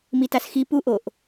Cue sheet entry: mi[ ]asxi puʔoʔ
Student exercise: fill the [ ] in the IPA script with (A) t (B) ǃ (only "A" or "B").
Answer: A